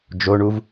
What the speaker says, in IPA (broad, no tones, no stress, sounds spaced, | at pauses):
d͡ʒ o ɳ u v